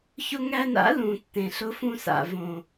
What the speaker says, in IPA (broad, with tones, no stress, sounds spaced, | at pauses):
ç ʊ˧ ŋ æ˧ n a̰˨˦ l ũ˨ tː ẽ˨ ɬ ʊ˧ f ũ˧ s a̰˨ v õ˨